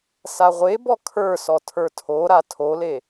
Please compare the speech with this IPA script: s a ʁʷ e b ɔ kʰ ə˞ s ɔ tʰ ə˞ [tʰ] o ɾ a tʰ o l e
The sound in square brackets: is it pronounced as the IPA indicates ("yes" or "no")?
yes